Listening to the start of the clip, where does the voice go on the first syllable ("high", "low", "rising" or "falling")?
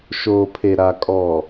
low